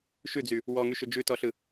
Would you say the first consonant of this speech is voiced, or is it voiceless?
voiceless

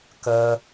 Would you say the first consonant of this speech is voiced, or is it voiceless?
voiceless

